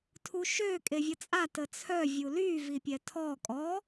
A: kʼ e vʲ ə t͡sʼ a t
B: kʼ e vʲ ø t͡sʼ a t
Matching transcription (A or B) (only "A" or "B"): A